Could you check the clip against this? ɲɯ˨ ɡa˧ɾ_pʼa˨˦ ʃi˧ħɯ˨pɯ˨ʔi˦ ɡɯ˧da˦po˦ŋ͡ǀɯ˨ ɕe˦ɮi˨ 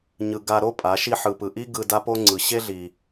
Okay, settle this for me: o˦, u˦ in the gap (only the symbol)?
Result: o˦